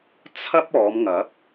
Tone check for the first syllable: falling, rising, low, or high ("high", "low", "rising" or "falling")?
high